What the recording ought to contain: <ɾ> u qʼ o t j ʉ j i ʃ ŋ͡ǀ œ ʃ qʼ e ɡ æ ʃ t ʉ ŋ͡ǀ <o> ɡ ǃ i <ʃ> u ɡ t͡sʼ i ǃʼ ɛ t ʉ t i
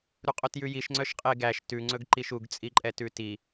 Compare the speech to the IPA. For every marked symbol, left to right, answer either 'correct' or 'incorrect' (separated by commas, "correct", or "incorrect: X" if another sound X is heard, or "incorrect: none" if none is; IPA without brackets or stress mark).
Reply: correct, incorrect: ɵ, correct